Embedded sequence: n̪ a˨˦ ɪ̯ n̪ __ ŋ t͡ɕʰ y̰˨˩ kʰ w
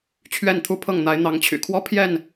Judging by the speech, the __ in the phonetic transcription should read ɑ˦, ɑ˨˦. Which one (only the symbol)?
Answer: ɑ˨˦